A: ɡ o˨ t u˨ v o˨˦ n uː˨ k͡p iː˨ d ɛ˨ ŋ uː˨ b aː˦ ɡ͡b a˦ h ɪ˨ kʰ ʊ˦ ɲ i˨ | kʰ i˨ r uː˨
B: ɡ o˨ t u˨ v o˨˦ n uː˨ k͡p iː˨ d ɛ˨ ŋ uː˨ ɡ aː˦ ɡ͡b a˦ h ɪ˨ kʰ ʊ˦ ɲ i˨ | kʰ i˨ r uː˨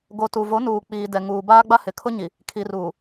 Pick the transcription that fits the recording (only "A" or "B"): A